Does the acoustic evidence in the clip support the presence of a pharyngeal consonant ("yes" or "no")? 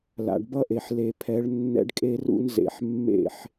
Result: yes